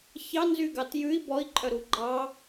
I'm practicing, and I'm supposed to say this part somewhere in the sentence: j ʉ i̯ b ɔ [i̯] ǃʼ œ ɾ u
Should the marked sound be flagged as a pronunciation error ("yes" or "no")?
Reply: no